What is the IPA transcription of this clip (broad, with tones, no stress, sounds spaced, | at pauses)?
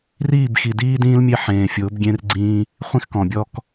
r iː˦˨ b x i˨ d iː˦ d ĩː˦ l mʲ e˦ ħ ẽː˨ fʲ ʊː˨˦ b ɡʲ ẽ˦ r ɡ͡ǀ ĩː˦ | χʷ ĩ˦ x k ɔ̃˨ bʲ ɔ˦ k